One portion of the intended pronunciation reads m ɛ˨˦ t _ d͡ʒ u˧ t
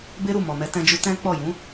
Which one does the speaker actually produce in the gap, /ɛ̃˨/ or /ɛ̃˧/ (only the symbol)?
ɛ̃˧